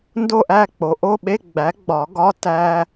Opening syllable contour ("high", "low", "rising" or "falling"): falling